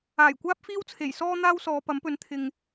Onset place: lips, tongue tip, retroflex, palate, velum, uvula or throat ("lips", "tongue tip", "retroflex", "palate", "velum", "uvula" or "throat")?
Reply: palate